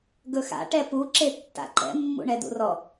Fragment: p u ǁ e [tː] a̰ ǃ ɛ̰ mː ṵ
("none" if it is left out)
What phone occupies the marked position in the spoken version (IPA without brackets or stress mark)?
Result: tː